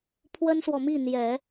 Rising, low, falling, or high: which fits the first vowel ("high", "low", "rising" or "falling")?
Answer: high